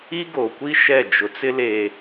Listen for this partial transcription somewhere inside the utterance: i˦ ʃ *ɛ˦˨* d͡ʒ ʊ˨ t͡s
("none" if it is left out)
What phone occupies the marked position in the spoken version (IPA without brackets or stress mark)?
ɛ˦˨